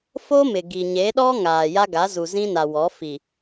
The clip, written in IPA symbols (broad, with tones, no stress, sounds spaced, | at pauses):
f o˦ m ɪ˨ ɡ i˨ ɲ e˨˦ ɗ ɔ˦ ŋ aː˨ j a˦ ɡ a˨˦ z u˨ z ĩ˦ n a˨ w ɔ˨˦ f i˨